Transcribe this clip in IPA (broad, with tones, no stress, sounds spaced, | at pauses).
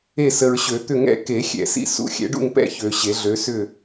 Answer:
e˥˨ s ə˨ ɹ ɕ ø˨˩˦ t̪ ʏ˥˨ ŋ ɛ̰˦ k e˨˩˦ xʲ ɛ̰˨˩˦ s ḭ˦ s ṵ˦ xʲ ɛ̰˨˦ ɖ ṵ˥˨ ŋ p ɛ̰˥˨ ç ø˨ ɕ e˨˩˦ ɮ ø˨˦ s ʏ˥˨